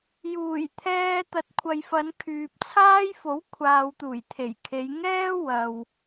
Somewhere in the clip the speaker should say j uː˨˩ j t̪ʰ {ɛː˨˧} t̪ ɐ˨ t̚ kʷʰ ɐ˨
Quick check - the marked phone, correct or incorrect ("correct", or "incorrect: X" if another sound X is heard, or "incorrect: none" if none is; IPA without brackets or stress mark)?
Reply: incorrect: ɛː˧